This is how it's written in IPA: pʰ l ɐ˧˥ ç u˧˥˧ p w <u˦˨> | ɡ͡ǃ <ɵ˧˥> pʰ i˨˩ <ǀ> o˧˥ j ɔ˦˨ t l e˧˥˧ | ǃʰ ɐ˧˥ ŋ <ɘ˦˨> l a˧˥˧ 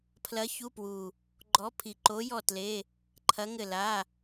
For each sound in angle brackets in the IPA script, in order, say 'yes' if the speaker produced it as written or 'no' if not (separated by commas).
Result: no, no, no, yes